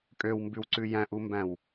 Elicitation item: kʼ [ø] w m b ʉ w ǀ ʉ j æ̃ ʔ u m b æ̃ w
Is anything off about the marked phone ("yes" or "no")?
no